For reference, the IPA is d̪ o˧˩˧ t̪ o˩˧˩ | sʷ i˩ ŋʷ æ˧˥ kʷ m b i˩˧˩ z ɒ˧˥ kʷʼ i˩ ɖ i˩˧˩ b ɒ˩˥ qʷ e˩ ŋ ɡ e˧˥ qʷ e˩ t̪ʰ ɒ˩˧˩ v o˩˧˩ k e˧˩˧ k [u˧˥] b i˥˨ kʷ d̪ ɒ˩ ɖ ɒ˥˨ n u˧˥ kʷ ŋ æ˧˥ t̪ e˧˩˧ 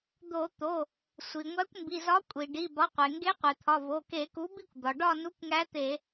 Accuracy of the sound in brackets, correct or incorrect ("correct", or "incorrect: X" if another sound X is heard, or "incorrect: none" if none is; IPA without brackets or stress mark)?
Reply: incorrect: u˩˥